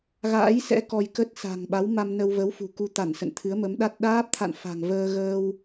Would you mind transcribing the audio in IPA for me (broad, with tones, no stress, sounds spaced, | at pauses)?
ɣ a̰ː˧˥ j s ɛ̰˧˥ k ɔ˧ j k ə˦˥ t̚ s a̤˨˩ ŋ ɓ a˨˦ w m a˧ m n ə˧ w v ə˨˦ w f ṳ˨˩ k u˧ t̪ a˧˩ n s ə̰˧˨ n t̪ʰ ɨ˨˦ ə̯ m ə˨˦ m ɗ a˦˥ t̚ ɗ aː˦˥ p̚ t̪ʰ a̰˧˨ n f a̤˨˩ ŋ v əː˧ ɣ əː˧ w